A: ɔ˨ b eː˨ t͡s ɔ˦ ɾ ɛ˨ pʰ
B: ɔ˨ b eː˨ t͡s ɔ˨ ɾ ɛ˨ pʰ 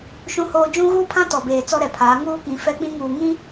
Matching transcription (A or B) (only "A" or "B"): A